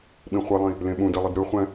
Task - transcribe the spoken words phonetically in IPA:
ɓ ĩ χʷ i lˠ ĩ | l ẽ ɓ ũ d ɛ lˠ i d ɾ ɯ χʷ ɛ̃

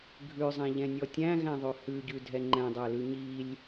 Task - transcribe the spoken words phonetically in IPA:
ɡʱ ʉ zˤ ɛ̃ ʎ ɛ̃ nʲ ɔ tʲ æ̃ ɣ æ̃ ðˤ ʉ h ʉ ɟ ʉ dʱ ɛ ŋ͡ǃ ɛ̃ dˤ æ l ʉ ɲ i lʲ

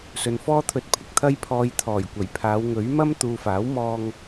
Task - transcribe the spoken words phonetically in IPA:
s ɵ˨ n f ɔː˥ t̪ʰ ɵ˧ t̚ pʰ ɪ˧ k̚ t̪ʰ ɐ˧ j pʰ ɔː˨ j t̪ʰ ɔː˨˩ j kʷ ɐ˨˩ j pʰ aː˨˧ w ŋ ɵ˨˥ ɥ m ɐ˥ m t̪ uː˨ f aː˨˥ w m ɔː˧ ŋ

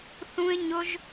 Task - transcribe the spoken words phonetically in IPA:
θ ũ˦ ɪ̯ ɲ ʊ˦ ʒ

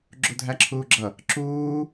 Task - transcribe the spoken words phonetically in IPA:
ɡ͡ǁ u dʱ æ ǁʰ uː ɡ͡ǁ ʌ | ǁ uː

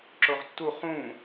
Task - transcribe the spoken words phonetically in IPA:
ǁ o ʁ tː u χ ũː

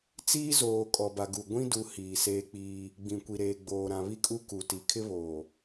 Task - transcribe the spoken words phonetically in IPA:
t͡s iː˦ z oː˨ kʼ ɔ˨ b a˨ ɡ u˨ ɡʷ ĩ˦ d u˨ h iː˨ s eː˦ k͡p iː˦ | ɡ͡b ĩ˨ kʷ i˨ ɾ eː˨ ɡ͡b oː˨ ɾ ã˨ β i˦ kʼ u˦ k u˨ t i˨˦ kʰ ɪ˦ β oː˨

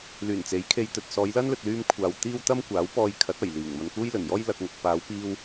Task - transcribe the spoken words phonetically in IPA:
l yː˨˩ n t͡s e˨˥ j kʰ e˧ j t̪ ɵ˨ t̚ s ɔː˨˧ j l ɐ˥ n l ɵ˨ t̚ l yː˧ m kʷʰ aː˨ w t̪ iː˥ w t̪ ɐ˥ m kʷ aː˨˥ w p ɔː˧ j kʰ ɐ˨˥ t̚ ɐ˨˩ j l iː˨˩ ŋ m ɐ˨ n k uː˥ j l ɵ˨˩ n j ɔː˥ j l ɐ˧ k̚ ŋ ʊ˨ k̚ p aː˨˧ w p iː˧ w

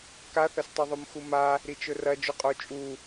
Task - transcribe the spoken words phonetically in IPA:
k a θ ɐ s tˤ o ðˤ o m x u m a | ɾ i t͡ʃ ɵ r ɐ d͡ʒ u qʼ o t͡ʃʼ u

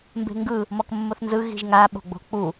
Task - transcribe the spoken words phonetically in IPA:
m b e̤ ŋ ɡ ɯ | m ɔ k mː o θ n z ɯ ɣ i̤ ʒ ŋ a ɓ o̤ ɡ͡b o̤ k͡p u

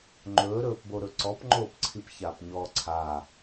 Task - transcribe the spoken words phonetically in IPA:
ŋ͡ǃ ɵː ɾ ɵː p b o ɾ ɵ ǀ ɔ p ŋ͡ǃ oː p ǀʰ i p ç aː p ɲ ɔː ǀʰ a

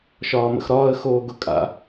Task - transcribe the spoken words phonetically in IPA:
ʃ ɒː m ə̰ x ɾ ɒː ə̯ x oː ɡ ʊ kʼ a̰

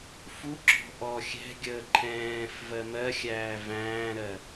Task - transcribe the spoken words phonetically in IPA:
f u ɡ͡ǁ ɔ̤ ʔ ɔ xʲ ɛ̤ ɡʲ əː ǃʰ ɛ̃ː f v ɜ m ɜ xʲ æː v æ̃ː ɾ ɜ

